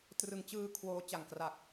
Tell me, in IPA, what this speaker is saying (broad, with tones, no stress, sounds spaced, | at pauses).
t r ɯ˩˦ ŋ t͡ɕ ɯː˧ kʰ w oː˦˥ t͡ɕ a˨˩ ŋ k r a˨˩ k̚